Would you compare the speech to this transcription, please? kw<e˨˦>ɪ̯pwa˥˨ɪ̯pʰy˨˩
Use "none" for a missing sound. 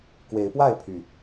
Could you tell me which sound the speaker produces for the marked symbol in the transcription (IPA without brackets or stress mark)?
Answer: e˨˦